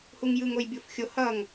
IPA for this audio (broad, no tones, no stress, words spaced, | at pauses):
huŋjɯŋ ojbʲofxʲo hʌŋ